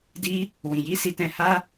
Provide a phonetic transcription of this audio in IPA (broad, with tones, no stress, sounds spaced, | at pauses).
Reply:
d i˦ | w ĩ˨ j i˨˦ s i˧ t ɛ̃˧ h a˦